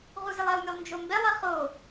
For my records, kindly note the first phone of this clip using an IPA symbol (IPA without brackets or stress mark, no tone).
ʁ